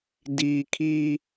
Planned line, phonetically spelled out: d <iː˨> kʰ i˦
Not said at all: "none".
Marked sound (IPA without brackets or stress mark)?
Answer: iː˨